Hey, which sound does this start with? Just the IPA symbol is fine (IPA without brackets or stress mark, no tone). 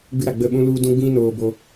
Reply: ɡ͡b